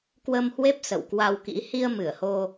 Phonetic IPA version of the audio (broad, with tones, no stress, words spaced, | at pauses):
kwə˧mhwe˦˥p̚ sə̰˧˨wkwa˧wkḭ˧˥ hi˧ə̯ mɨ˧˩ə̯ho˧